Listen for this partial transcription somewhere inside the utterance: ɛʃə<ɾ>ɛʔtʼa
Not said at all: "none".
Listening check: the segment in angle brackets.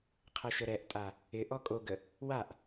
ɾ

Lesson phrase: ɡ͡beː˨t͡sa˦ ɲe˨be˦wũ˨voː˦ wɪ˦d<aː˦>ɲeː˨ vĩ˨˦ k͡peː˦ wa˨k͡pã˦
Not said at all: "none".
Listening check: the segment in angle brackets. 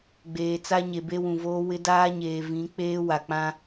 aː˦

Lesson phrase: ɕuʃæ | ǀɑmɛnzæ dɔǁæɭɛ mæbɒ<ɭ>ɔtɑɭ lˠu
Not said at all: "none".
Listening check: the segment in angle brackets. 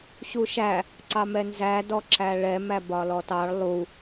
l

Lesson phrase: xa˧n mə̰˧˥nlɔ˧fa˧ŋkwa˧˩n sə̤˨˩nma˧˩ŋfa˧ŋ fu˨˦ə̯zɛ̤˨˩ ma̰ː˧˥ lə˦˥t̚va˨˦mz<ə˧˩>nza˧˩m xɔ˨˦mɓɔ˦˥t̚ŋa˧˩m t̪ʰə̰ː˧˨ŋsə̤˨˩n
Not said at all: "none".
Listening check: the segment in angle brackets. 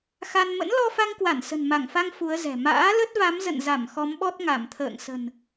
ə̰˧˨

